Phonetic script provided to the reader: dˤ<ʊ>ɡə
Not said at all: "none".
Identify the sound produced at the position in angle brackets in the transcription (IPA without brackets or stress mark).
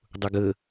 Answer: ʊ